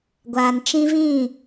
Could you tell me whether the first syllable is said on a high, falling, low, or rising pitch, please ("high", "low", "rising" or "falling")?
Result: low